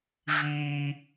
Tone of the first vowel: high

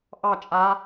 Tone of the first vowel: falling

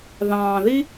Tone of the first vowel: low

